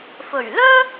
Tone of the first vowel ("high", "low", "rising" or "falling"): low